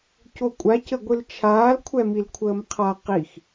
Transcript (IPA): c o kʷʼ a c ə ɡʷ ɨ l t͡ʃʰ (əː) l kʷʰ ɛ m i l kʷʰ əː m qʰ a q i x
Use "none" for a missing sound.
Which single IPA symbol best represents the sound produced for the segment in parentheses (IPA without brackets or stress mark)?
aː